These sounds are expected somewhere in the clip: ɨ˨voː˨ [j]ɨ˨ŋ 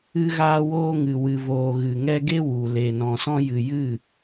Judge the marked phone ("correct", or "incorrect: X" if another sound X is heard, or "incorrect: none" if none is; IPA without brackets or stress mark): incorrect: ɣ